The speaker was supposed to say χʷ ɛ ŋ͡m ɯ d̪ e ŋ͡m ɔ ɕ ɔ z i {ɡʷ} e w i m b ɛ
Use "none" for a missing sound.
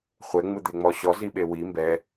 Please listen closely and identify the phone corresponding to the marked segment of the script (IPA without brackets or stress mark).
ɓ